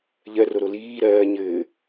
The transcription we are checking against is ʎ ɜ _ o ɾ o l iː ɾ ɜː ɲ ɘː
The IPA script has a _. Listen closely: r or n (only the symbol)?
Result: r